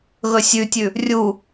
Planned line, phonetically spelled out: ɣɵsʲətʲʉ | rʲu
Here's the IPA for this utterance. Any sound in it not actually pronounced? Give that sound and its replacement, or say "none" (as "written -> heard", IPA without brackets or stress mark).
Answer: ə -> ʉ